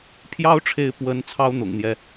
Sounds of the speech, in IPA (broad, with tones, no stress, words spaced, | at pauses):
pʰjɑ˥ʊ̯ʈ͡ʂʰe˧˥ɪ̯ pwə˧˥n t͡sʰɑ˥ʊ̯ n̪ʊ̰˨˩ŋn̪jɛ˦